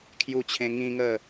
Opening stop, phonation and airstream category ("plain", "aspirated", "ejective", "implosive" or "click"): aspirated